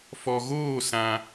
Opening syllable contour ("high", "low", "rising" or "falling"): low